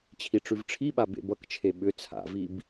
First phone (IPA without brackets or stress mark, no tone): t͡ɕʰ